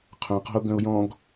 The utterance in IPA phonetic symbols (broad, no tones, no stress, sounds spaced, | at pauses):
qʰ œ̃ q ɔ̤ ʊ̯ ɡ œ̃ ʊ̯ j ɔ̃ ɡ